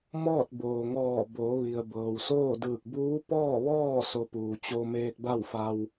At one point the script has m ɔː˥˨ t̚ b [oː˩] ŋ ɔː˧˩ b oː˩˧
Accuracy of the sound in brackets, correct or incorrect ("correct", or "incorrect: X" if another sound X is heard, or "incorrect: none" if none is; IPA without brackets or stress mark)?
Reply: correct